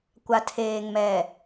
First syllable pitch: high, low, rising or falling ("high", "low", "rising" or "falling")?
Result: low